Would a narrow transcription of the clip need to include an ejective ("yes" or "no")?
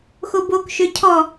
no